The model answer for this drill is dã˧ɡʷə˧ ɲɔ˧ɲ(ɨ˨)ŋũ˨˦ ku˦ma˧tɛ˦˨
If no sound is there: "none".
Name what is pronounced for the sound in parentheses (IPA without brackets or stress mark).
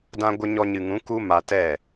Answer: ɨ˨